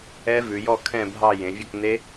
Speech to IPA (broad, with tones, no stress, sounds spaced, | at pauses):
ɛ˦˥ v ʉ˩˧ j ɔ˥˧ kʰ ɛ̃˥˧ bʱ ɑ˥˧ j ẽ˩˧ vʲ ɵ˥˧ k n e˦˥